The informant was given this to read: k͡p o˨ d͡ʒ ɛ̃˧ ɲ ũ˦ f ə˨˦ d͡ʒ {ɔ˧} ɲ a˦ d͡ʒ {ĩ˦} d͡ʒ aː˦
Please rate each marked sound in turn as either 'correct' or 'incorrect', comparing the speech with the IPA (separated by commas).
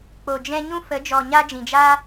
incorrect, incorrect